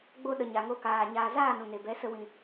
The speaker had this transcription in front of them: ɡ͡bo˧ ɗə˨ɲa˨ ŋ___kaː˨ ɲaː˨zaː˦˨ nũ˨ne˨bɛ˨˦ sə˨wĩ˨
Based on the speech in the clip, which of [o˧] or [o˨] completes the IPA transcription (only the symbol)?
o˧